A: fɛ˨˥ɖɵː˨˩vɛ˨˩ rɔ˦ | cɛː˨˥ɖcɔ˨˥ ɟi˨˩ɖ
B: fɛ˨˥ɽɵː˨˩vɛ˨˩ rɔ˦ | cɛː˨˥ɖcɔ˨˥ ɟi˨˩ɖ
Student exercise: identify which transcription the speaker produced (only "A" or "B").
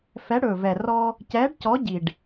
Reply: B